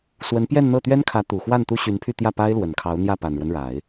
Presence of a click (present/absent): absent